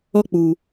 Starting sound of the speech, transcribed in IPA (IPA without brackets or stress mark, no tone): ɔ